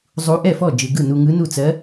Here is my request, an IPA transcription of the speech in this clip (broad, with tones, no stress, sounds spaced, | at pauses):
zˤ u˧˥ ʔ ɛ˥˨ f ɔ˥˨ d͡ʒ ɯ˧ ɡ ɯ˥˨ n u˧ ŋ ɯ˧˥ n u˥˨ t͡s ɜ˧˥